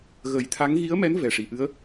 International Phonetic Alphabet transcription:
ɣə˨˩˦jt̪ʰa˧˥ŋ ɣi˧˥ə̯mɛ˧˥n vɛ˨˩ʂi˨˩˨ ʔɨ˧˥ə̯

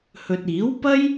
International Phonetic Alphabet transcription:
hɵ˨t̚iː˨˥w pɐ˥j

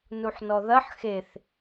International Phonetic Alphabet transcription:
nuħnɔðɐħ xeθ

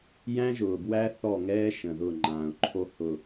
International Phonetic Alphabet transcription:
jæ̃˦ʒʊː˨bwæ˦ θɔ˦˨ŋɛː˦ ʃə̃˨ðʊ˦˨ ŋ͡ǃãː˨ʊ̯ǃʰo˦hʊ˨

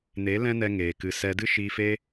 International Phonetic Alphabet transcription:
ne˨˦ lɛ̃˦nɛ˧ ŋeː˨kɨ˧sɛ˦ dɨ˦ʃiː˧fe˦

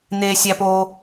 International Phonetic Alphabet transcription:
n̪eː˥sʲæ˥poː˥

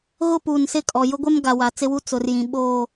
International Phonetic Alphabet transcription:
ɣʊ˦puː˨nsɪ˦˨kʼɔ˨ jʊ˦ɡʷɛ˦m ɡa˨wa˨ t͡sɪ˦wu˦ t͡sʊ˨rjĩ˨ ɓoː˦˨

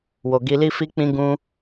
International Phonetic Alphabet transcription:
wo˨ɡi˧li˦fi˦ k͡pĩ˦ɡũ˦

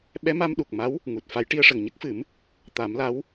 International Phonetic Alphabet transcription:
ɓɛ˧˥ma˧mɗu˨˩k̚ma˧˥w | ŋu˨˩t̚fa˧˥j ʈi˧ə̯ʂə˨˩ŋɲə˦˥k̚fɨ˨˩˦m | t̪a˨˩˦mla˧˥w

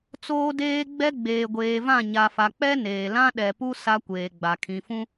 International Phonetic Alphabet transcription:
t͡soː˦deː˦ɡ͡bɛ˦ ɡ͡beː˨ɡʷeː˨vã˦˨ ɲa˨fa˨k͡pɛ˦ neː˨ lã˦ɗɛ˨pu˦ sa˦kʷeː˨ɡ͡ba˨ kʰĩ˨fũ˦

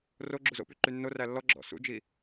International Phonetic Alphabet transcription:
ro ɡ͡ǁuzo̰py ǃynːoræ lːɔɡ͡ǁɔ̰ sṵd͡ʒi

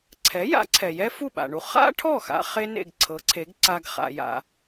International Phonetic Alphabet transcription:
ǀʰɛ˩˥ ja̰˩˥ǀʰɛ˩ jɛ˥fu˥˩ɓa̰˩ɳu˧ χa̰˥ʈʰɔ˥˩xa̰˧ χe˥nḛ˥˩ɡǀʰɤ˩˥ǀʰe˩˥ɡ ǀa˧ɡχa̰˩ja̰˩

